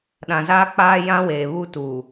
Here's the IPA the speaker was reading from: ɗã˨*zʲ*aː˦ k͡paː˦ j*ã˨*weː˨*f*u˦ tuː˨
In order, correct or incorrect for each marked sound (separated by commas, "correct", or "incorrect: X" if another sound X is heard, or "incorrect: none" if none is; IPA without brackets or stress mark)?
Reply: incorrect: z, incorrect: ã˦, incorrect: β